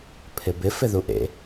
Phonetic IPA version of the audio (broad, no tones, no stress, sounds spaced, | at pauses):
pʰ ɪ b ɪ f ɪ ð u ʔ ḛ